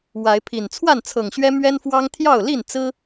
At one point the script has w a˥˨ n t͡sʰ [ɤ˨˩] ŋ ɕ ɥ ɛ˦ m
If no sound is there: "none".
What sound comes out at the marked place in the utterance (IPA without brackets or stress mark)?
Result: ɤ˨˩